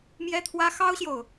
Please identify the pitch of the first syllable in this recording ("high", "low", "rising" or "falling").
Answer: high